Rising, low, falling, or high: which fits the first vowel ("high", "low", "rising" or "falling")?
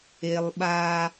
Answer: high